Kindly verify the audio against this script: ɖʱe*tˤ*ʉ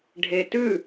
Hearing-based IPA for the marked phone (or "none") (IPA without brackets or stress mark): t